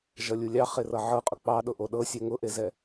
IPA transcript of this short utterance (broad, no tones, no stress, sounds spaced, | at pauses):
ʒ ʌ lʲ u lʲ ɑ χ e r ʌ ʕ ɤ qʼ ʊ k͡p ɑ ɗ ʊ ʔ o ɗ ɤ sʲ ɛ ŋ ʊ ʔ e z ɛ